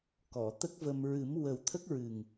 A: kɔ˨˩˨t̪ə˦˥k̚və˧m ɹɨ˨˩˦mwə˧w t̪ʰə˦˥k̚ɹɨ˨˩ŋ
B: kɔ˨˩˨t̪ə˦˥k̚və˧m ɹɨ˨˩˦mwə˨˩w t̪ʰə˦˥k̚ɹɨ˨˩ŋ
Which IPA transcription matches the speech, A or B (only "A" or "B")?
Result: B